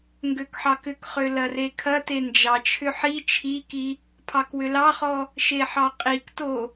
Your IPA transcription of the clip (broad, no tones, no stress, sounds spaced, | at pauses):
ŋ ɡ ø k ħ ɑ k ʏ k χ ø l ɐ r e kʰ ɐ t e n d͡ʒ ɑ t͡ʃʰ ʏ ħ i t͡ʃʰ i k i | pʰ ɑ k w ʏ l ɑ χ ɔ | ʃ e ħ ɑ qʼ i k t o